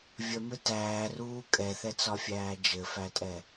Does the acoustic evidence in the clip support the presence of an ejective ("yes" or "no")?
yes